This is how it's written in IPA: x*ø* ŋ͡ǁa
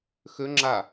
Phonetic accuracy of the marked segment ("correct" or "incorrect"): correct